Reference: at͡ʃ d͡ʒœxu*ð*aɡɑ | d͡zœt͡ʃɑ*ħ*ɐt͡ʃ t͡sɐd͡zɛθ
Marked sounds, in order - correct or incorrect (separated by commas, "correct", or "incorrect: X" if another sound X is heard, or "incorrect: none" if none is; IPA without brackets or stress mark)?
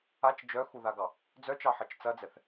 correct, correct